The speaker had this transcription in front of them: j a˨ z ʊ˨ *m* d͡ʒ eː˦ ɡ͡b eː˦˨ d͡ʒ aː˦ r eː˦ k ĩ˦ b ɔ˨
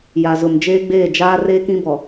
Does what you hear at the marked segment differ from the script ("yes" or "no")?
no